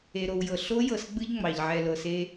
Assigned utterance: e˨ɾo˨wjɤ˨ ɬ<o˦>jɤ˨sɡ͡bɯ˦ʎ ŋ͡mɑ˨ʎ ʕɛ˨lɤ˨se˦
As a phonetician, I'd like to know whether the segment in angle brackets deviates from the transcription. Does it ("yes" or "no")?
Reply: no